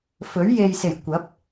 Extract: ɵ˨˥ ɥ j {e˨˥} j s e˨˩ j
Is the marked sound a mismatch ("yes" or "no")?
yes